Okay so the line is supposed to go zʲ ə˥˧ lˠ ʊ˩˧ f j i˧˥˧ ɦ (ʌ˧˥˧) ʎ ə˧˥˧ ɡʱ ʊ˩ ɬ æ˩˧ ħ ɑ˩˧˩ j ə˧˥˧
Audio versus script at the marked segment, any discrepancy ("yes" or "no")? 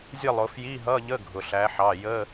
no